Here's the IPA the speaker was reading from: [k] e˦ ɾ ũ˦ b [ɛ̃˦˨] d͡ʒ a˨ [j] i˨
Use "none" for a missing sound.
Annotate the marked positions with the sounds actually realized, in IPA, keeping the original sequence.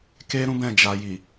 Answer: k, ɛ̃˦˨, j

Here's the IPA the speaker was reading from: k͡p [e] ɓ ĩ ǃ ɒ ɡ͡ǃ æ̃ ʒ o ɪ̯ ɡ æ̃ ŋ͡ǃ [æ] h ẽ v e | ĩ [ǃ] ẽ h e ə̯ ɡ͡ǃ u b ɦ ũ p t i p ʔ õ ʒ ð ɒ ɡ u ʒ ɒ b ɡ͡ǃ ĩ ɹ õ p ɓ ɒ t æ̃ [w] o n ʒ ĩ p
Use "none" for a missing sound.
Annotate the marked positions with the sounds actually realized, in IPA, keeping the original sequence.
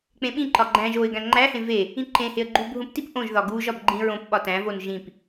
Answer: ẽ, æ, ǃ, v

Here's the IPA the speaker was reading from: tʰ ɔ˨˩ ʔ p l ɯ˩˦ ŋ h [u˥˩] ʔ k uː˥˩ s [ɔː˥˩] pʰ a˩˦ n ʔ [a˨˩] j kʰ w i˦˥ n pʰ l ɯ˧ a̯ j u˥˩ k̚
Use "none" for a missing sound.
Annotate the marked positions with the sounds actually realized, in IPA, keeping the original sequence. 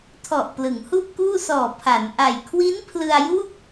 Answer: u˥˩, ɔː˨˩, a˨˩

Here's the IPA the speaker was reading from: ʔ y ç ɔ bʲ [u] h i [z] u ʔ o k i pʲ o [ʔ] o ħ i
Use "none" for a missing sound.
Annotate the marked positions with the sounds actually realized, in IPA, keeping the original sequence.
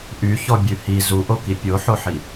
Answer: ʉ, z, ħ

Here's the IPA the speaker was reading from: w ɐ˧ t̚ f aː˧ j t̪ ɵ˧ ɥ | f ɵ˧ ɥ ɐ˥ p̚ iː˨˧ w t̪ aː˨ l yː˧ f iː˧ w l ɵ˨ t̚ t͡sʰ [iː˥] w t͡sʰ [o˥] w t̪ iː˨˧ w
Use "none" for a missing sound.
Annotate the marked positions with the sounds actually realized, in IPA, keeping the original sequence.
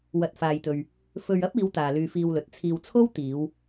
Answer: iː˧, o˥

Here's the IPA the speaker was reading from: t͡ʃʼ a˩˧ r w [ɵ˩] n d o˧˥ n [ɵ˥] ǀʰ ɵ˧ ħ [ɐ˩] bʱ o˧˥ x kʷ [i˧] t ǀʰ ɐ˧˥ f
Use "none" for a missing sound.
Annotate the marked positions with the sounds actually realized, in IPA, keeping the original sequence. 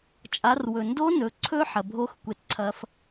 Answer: ɵ˩, ɵ˩˧, ɐ˩, e˧

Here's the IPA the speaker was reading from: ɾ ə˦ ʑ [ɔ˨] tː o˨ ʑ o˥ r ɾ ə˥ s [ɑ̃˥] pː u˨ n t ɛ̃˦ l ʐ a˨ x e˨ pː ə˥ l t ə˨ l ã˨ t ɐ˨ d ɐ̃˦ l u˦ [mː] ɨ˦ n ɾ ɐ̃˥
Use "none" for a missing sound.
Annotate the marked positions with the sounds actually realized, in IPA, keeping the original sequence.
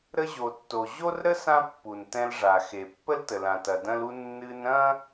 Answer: o˨, ã˥, nː

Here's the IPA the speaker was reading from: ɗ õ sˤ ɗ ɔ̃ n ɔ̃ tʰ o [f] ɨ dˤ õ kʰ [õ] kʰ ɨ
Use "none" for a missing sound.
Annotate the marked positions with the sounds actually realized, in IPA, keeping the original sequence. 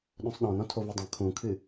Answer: v, ũ

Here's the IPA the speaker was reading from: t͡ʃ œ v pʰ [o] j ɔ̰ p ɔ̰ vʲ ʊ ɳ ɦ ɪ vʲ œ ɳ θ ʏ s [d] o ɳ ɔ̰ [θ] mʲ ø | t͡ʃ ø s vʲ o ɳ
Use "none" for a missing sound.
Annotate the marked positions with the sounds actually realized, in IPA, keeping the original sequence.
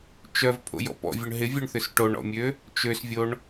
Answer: o̰, ʈ, none

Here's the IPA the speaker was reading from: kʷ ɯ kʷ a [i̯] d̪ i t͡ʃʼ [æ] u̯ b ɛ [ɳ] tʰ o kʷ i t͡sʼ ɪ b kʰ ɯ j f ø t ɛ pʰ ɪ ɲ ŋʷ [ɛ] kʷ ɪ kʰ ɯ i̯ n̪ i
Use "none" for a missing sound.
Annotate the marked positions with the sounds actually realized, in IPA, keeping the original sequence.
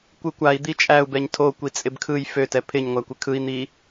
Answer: i̯, æ, ɲ, æ

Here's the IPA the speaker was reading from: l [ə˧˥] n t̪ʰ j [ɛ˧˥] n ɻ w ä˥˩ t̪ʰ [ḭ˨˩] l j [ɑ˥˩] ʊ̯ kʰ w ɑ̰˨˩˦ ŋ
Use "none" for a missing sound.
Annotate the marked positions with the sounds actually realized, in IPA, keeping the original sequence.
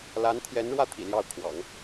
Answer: a˧˥, ɛ˧˥, ḭ˨˩, ɑ˥˩

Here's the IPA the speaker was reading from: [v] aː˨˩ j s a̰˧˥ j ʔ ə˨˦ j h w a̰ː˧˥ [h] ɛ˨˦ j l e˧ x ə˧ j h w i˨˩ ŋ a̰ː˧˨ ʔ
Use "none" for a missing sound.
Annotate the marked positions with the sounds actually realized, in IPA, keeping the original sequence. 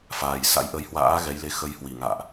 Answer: f, ɣ

